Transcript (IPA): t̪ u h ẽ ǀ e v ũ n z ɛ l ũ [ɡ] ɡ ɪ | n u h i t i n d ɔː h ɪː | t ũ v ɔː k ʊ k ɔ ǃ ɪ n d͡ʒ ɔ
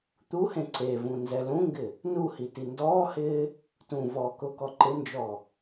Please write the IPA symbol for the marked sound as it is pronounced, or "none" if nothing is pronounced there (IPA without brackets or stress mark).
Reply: ŋ